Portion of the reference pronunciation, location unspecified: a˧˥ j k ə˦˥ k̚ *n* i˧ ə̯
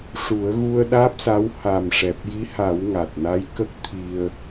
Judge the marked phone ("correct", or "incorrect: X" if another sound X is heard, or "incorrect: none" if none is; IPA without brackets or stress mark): incorrect: t̪ʰ